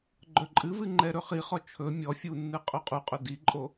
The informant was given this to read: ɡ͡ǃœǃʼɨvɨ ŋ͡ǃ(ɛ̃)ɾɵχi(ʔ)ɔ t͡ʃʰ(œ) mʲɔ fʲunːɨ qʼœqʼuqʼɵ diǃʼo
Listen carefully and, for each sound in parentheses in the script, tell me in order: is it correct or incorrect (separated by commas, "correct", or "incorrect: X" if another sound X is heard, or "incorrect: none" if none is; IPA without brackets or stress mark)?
incorrect: ɛ, incorrect: χ, incorrect: ɵ